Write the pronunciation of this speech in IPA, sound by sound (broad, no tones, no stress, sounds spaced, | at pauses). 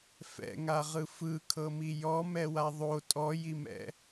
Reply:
f ɛ̰ ŋ a ʁ ɯ f ɯ kʰ ɤ m i j ɔ m ɛ w a ðˤ o tʼ ɔ j i m ɛ̰